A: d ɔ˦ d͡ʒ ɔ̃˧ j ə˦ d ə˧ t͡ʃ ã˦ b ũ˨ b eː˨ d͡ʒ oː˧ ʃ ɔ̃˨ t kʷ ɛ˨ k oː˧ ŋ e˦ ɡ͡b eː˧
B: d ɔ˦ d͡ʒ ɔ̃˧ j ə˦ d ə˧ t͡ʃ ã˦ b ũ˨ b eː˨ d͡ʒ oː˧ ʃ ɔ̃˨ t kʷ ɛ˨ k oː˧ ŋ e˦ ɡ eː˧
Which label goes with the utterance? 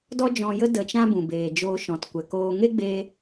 A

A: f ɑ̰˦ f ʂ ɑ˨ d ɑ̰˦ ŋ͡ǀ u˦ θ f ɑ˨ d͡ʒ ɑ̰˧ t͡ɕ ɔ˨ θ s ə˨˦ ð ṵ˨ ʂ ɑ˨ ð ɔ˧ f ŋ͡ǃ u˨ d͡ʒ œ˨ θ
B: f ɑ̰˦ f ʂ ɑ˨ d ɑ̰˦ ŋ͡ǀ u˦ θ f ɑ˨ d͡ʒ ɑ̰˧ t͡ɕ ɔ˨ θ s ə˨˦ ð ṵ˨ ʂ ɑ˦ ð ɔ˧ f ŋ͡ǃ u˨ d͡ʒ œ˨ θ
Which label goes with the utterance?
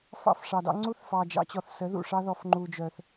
B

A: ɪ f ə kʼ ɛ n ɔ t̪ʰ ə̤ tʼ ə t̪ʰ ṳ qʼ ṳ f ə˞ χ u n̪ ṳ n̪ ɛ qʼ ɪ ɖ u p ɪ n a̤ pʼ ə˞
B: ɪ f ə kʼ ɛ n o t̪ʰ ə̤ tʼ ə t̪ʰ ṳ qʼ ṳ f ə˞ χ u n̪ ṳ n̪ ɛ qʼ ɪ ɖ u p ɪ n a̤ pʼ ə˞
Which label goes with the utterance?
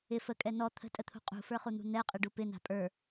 A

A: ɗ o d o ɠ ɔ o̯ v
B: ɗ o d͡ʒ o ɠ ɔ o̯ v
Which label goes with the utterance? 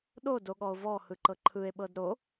A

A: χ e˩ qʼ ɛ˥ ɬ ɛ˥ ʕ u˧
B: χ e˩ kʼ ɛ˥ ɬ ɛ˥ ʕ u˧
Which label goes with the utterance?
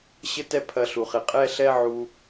A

